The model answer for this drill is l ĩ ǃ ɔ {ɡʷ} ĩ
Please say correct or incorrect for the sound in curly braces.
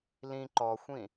incorrect